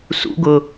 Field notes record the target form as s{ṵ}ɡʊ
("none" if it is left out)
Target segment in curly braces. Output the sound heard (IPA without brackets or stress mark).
ṵ